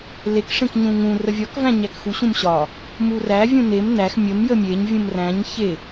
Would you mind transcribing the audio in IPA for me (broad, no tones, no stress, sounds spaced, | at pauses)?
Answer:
l e k ʂ ẽ k ɲ ũ ŋ ũ r ə vʲ ɒ k v æ̃ ɲ æ k x u ɕ ũ m ɕ ɒ | m u r æ vʲ ũ n e m n æ x mʲ ə m j ə mʲ e ɲ vʲ ũ m r æ̃ ɲ ç e